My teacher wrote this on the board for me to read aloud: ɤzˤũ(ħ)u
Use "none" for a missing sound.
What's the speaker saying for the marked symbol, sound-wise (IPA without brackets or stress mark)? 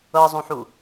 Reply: ħ